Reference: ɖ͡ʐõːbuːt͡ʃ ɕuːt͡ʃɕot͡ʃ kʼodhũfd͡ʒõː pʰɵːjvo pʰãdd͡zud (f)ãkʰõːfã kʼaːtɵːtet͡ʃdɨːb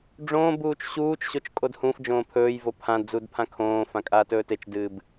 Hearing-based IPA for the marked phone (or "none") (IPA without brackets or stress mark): pʰ